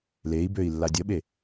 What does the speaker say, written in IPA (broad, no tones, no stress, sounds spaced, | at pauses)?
l e i̯ b ø i̯ lː a dʲ ə ɓ e